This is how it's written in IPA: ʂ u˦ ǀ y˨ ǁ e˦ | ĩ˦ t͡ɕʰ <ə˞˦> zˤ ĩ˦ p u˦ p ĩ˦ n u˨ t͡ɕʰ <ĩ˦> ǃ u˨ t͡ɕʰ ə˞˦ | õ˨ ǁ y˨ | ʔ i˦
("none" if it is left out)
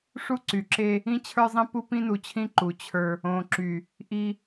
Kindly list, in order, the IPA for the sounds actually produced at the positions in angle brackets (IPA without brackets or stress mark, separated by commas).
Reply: ə˞˦, ĩ˦